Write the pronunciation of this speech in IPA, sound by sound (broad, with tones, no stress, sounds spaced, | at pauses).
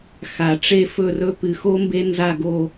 x a˩ ʈ͡ʂ e˦˨ f ɵ˦˨ r ɵ˦ p ɨ˩ x o˦ m b e˦ n z a˦˨ ɡ o˦˨